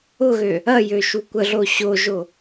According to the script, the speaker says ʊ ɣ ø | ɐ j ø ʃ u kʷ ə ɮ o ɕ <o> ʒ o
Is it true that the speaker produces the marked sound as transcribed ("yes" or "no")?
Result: yes